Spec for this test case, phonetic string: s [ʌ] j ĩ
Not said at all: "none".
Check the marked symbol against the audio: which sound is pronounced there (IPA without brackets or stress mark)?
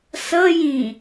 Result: ʌ